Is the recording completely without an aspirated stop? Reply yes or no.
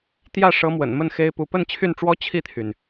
no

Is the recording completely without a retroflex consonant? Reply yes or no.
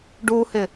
no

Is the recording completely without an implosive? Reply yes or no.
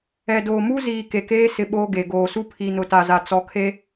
no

